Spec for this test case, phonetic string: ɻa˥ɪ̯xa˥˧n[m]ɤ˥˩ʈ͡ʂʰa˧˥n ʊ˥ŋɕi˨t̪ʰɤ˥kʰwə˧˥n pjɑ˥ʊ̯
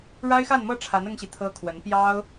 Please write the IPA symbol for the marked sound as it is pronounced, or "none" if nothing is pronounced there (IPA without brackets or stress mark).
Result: m